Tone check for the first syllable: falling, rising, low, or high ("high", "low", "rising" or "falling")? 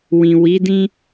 low